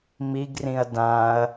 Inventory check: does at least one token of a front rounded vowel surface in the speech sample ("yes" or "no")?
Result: no